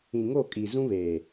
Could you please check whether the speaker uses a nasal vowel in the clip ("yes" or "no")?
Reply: yes